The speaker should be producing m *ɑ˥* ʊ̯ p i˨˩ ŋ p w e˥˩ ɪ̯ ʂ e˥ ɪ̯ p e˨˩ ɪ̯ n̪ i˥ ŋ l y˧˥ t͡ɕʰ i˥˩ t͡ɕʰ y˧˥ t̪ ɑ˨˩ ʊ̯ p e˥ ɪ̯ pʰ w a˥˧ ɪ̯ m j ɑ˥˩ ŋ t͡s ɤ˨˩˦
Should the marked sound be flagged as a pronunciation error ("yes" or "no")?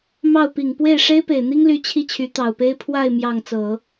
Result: yes